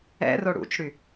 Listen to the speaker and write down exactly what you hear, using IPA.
ɛ̰ r o ɽ ṵ t͡ʃ ɽ y

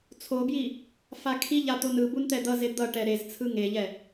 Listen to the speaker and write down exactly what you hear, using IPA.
t͡sʰ o b j i | f a kʰ i ʎ a t̪ o n ɯ b u n t̪ ɛ d̪ ʌ z e d̪ ʌ ʈ ɛ ɾ e z t͡sʰ ɯ ŋ e ʎ ɛ

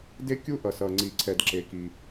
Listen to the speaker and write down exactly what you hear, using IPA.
d e˥ kʲ u˥ ʔ ʌ˩ s ʌ˩ ŋ͡ǀ i˩ ǀʰ ɛ˩ d ǁ e˩ k i˩

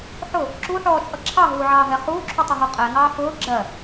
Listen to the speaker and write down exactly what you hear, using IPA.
ħ ʊ | ǁ u ħ ɔː t͡ʃʼ ʌ ǁʰ ɑ ɦ uː ʕ ɑː ɦ ɛ χ uː ǁʰ u tˤ ʊ ɦ ɔ qʼ ɛ ŋ ɑː f ʊː ɡ͡ǁ ɜ

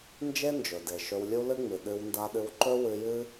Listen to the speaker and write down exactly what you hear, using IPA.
n d͡ʒ e˥ n d͡ʒ ɵ˩ d e˩ ʃ ɵ˧ w lʲ u˥ l ɨ˥ ŋ͡m ɨ˩ ɗ ɨ˧ w n d a˧ ɗ ɨ˧ w ǃ ɵ˥ w ɨ˧ j ɨ˥

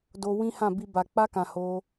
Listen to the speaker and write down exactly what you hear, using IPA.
d o˧ w ĩ˦ h ã˦˨ b i˧ b a˨ k͡p a˧ k ã˨ h o˧

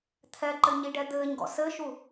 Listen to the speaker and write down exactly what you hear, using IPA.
t̪ʰ ɛ ǃ ɘ ɲ i ɖ ɛ d̪ ɘː ɲ ɡ ɔ̰ s ɘ ʃ u

